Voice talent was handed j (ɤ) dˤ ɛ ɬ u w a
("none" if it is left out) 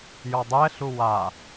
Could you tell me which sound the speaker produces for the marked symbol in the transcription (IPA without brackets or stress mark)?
ɔ